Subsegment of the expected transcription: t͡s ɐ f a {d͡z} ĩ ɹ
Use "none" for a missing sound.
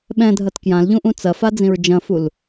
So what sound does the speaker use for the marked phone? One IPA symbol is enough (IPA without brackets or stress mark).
d͡z